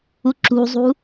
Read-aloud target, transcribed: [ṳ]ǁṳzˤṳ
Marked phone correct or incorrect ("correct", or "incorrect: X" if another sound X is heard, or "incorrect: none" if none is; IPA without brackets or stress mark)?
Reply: incorrect: u